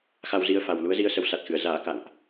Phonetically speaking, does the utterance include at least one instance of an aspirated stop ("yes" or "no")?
no